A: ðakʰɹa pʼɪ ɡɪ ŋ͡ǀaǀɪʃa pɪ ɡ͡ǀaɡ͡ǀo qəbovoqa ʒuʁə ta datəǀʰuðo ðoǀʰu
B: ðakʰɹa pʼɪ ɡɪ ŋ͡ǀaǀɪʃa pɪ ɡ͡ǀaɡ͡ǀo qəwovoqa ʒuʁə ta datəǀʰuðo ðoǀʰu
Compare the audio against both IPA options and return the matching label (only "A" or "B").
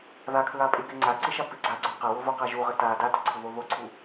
B